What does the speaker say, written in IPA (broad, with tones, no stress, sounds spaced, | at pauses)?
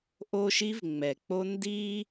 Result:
ʔ o˦ ʃ i˦ v ŋ͡m ɛ˨ k͡p o˦ n d i˦